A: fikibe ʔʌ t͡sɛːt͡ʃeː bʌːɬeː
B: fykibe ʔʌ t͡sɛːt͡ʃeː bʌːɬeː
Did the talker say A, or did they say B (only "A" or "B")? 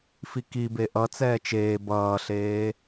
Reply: A